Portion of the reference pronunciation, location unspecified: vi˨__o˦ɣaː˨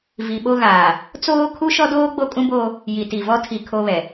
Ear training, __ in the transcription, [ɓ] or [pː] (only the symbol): ɓ